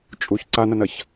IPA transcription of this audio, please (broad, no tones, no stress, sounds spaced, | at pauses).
t͡ʃʼ u ç ǀ a n ɐ n ɐ ç